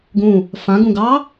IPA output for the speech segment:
ɡ ũ | f ã ɡ ũ ɡ ɑ

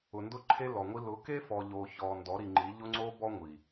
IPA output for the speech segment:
ʊ˨ n d ʊ˦ ǃʰ e˦ l ɔ˨ ŋʷ i˦ l ʊ˨˦ k e˦ f ɔ˨ ʎ o˨ ç ɔ˨ n d ɔ˨˦ ɾ i˨ ŋ͡ǃ i˨˦ ʎ ʊ˦ ŋ͡ǀ o˦ b ɔ˦ ŋʷ i˨

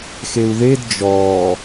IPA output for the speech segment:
x e u̯ ð e d d͡ʒ ɔː

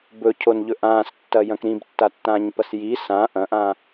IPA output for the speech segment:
b ɵ cʰ o n ʎ ɵ ʔ ãː s tː ɐ j ɐ̃ k ɾ ĩ b tː a tː ãː ɲ p ɐ s j i s ã ʔ ɐ̃ ʔ ãː

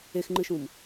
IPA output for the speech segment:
e x ŋ͡ǃ ɨ ʃ ũ m

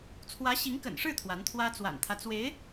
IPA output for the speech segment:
t͡sʰ w ä˧˥ ɕ i˧˥ ŋ k ə̰˨˩ n ʂ ɻ̩˥˩ t̪ʰ w a˧˥ n t̪ʰ w ä˥ t͡s w a̰˨˩ n t̪ʰ ä˦ t͡s w e˧˥ ɪ̯

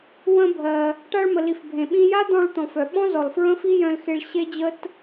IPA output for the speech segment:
w ə̃˧ bʱ ɜ˩ | ʈ a˧ ɭ m ə˩ l i˩ f bʱ ẽ˩ ɓ ĩ˧ j a˥ d̪ ɔ̃˧ ɭ t̪ ɔ̃˩ f œ˩ ɓ ɔ̃˥ z ɔ˩ l f ɹ ə̃˥ f i˥ j œ̃˧ l x e˧ ɭ ɕ e˥ d͡ʑ ə˥ t

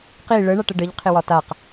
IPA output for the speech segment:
q i ɭ ə ɳ a ʈ ə ɖ ə ʎ qʰ ɪ w ɒ t a q

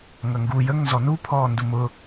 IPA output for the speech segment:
ŋ ɐ ŋ ɡ u j ə ŋ n z ɔ n u pʰ ɔː n d u m ʊ

